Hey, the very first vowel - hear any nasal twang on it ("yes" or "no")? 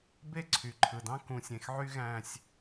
no